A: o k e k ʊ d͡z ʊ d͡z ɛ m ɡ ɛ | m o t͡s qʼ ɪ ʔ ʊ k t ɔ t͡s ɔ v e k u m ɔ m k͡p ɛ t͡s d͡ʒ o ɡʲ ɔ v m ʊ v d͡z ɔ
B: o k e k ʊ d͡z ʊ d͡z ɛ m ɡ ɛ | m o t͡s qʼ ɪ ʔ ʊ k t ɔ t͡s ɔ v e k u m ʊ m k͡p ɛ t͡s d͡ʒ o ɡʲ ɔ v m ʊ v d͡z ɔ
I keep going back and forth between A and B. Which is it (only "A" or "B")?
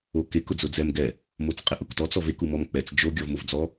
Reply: A